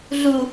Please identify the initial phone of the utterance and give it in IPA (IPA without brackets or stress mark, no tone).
ɮ